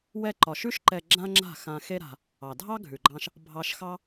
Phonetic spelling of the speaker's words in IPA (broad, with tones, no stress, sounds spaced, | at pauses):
w ɛ˧ ǃ ɒ˨ ʃ ʉ˦ ʃ ǃ ɛ˧ ɡ͡ǁ ã˦ ŋ͡ǁ a̤˦˨ x ã˧ x e˦ ɾ a̤˧ | ɑ˨ dʱ ɑ˦ ɡʱ ʉ˨ ɡ͡ǃ ɑ̃˧ ʃ | bʱ ɑ˧ ʃ x ɑ˦